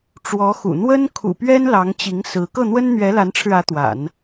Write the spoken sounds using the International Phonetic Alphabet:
ʈ͡ʂ w ɔ˧˥ x ṵ˨˩ n̪ w ə˥ n kʰ ṵ˨˩ p ɥ ɛ˥ n l ɑ˧˥ ŋ t͡ɕ i˧˥ ŋ s ɹ̩˧˥ k ɤ˥˩ n̪ w ə˥ n n̪ ɥ ɛ˧˥ l a˧˥ n ʈ͡ʂʰ ɻ̩˧ ä˧˥ t̪ w a̰˨˩˦ n

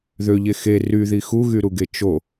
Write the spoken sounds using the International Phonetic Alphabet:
ð ø ʎ e x e r y ð i x u ɣ y ɾ u ɡ e t͡ʃ o

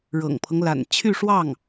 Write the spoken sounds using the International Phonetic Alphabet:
ɻ ɤ̰˨˩ ŋ pʰ ɤ˦ ŋ l a̰˨˩ n t͡ɕʰ y˥˧ ʂ w ɑ˥˩ ŋ

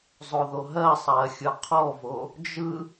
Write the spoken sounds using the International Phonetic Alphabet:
zˤ o ð o ɦ ɜ sˤ ɜ xʲ ɯ qʰ ɔ v o | d͡ʒ ɯ

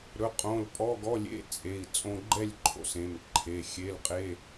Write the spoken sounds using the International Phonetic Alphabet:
ɾ ɵ˩˧˩ qʼ õ˩˧˩ l pʼ ɔ˧˥˧ ɡ ɔ˧˥˧ lʲ ḛ˧˥˧ t͡sʼ e˩˧˩ i̯ t͡sʼ õ˧ ɡ͡ǃ ɛ˥˨ lʲ ǃʰ o̰˧ s ẽ˩˧˩ m ǃʰ e˩˧˩ xʲ e˧˥˧ l qʼ e˧˥˧

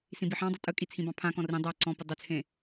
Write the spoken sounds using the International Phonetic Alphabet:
s ĩ b i ħ ɑ̃ dˤ ɪ tʼ ə kʼ i t͡sʰ ĩ b ɑ̃ pʰ ã k ɔ̃ r ĩ dˤ a ǀ ɔ̃ p ɪ dˤ ɪ t͡sʰ ẽ

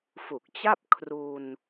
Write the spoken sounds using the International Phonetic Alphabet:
f u˨˩ k̚ t͡ɕ a˥˩ p̚ kʰ r u˧ n

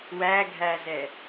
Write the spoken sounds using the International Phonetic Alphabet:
w æ ɡʱ æ z ɛ

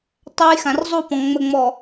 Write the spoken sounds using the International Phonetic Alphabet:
tˤ a˦ j x ã˨ r zˤ u˦˨ p ɔ̃˨ ŋ͡m ə˨ ŋ͡m ɔ˨

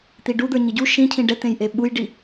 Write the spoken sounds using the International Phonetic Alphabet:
t̪ i ɖ u d̪ ə˞ ɲ i ɟ u ʃ ĩ cʰ ĩ ɖ ɛ t̪ ẽ j ʔ e ɓ u j ɖ i

